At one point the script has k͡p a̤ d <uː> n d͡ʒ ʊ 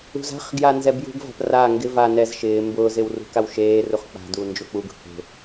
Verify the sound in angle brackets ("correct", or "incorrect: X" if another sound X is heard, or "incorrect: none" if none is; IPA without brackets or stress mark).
correct